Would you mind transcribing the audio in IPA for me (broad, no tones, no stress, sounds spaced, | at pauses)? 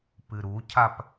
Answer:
p ɨ ɾ u cʰ a p